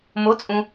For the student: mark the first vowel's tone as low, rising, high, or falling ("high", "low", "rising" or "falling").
rising